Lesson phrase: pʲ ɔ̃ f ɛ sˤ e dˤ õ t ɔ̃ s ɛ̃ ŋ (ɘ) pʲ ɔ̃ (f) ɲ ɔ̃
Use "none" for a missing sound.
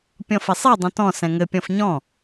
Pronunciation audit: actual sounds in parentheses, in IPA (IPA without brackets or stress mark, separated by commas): ɘ, f